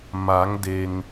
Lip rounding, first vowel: unrounded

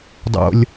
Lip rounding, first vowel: rounded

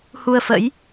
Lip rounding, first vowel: rounded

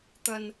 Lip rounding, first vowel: unrounded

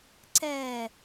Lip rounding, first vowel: unrounded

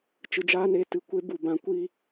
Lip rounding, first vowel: unrounded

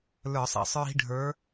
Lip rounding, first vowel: unrounded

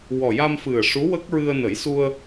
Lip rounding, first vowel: rounded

